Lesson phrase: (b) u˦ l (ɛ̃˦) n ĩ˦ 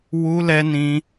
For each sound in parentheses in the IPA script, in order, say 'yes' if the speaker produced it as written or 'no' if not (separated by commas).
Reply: no, no